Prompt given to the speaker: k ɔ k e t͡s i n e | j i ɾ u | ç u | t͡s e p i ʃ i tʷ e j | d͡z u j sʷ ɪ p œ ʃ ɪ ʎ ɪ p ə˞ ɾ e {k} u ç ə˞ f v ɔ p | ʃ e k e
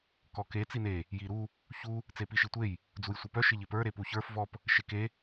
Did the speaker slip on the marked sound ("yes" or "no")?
yes